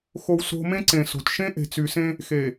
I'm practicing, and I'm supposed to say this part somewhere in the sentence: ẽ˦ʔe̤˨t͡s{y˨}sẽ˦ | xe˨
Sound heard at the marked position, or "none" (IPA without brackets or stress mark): y˨